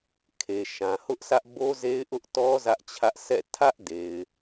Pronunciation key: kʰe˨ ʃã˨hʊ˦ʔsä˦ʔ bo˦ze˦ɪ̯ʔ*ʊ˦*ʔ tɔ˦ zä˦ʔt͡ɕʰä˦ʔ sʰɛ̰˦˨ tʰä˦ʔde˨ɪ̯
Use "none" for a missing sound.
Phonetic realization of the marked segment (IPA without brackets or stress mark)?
ʊ˦